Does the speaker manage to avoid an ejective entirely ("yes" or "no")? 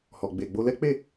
yes